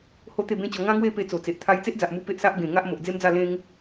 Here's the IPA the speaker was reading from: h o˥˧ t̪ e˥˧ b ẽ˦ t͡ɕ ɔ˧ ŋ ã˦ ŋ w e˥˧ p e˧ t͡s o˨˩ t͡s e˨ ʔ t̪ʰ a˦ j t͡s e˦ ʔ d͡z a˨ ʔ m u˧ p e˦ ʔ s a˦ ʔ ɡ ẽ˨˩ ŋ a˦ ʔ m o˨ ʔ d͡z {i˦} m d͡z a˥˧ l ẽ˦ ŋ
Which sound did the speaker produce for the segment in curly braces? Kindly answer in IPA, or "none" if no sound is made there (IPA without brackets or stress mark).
e˦